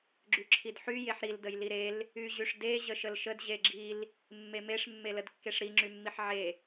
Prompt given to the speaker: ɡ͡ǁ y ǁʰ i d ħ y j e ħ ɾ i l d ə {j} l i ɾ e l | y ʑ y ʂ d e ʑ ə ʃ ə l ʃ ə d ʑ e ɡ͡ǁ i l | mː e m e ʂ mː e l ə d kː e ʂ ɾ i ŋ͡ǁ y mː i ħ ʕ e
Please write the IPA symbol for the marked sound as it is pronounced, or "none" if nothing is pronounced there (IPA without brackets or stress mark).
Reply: j